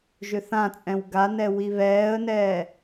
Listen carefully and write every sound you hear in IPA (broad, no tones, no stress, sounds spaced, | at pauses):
ʒ ʏ θ ã t͡sʼ ɛ̃ w ɡ a n ɛ w i β ɛː ə̯ n ɛː